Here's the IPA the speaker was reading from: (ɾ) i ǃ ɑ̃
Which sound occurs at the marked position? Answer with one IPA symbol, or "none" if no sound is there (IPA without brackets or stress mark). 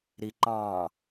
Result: ɾ